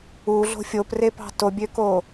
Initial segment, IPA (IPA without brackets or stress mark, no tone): u